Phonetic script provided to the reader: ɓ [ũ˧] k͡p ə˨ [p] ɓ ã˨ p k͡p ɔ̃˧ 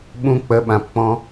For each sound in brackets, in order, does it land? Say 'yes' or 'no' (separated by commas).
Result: yes, no